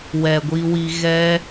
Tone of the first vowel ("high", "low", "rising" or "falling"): low